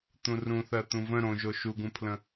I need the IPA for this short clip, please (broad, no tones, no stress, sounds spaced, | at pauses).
t̪ ũ r ũ θ ɜ t̪ ũ v ə̃ ɾ õ ʒ o ʃ u ɡ ũ pʰ l ə̃